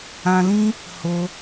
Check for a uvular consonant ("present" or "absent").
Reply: absent